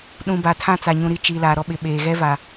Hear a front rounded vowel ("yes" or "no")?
no